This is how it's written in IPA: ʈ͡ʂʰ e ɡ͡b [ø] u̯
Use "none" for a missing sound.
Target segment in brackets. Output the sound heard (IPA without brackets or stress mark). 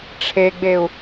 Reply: e